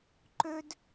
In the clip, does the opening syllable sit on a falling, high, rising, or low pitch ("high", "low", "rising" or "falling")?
high